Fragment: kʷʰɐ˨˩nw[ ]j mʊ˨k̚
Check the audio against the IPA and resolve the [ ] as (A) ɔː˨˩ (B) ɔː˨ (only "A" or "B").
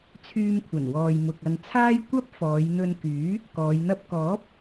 B